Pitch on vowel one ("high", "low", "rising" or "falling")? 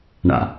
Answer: low